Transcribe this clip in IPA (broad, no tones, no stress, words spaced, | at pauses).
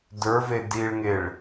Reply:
də˞ve diɭŋeɭ